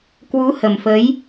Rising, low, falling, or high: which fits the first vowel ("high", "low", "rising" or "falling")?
rising